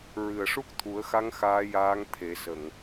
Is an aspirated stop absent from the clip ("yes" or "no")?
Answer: no